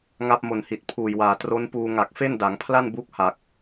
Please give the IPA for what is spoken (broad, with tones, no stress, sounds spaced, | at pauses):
ŋ a˦˥ p̚ m o˨˩ n h i˨˩ t̚ pʰ uː˨˩ j w aː˨˩ t r o˦˥ n p uː˧ ŋ a˨˩ k̚ f e˥˩ n d a˩˦ ŋ pʰ l a˥˩ n b u˦˥ k̚ h a˨˩ k̚